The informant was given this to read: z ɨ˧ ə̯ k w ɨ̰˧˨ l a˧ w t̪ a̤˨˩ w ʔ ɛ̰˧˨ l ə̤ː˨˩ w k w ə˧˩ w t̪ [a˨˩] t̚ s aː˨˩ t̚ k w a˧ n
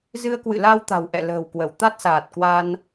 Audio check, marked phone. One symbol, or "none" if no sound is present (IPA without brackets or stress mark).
a˦˥